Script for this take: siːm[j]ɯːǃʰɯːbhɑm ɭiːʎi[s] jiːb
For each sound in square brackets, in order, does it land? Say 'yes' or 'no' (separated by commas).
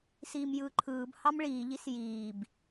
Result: yes, yes